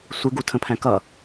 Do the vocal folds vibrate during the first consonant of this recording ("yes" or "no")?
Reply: no